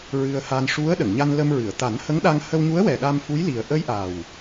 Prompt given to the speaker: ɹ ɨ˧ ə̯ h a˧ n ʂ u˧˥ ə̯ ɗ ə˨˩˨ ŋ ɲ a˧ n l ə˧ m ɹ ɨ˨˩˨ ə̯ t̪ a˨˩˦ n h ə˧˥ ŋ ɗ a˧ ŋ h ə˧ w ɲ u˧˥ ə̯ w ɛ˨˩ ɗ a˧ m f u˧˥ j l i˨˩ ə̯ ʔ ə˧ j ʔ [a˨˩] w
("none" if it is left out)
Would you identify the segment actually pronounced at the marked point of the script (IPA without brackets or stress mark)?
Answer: a˨˩